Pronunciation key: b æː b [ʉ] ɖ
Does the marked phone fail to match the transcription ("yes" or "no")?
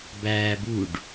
yes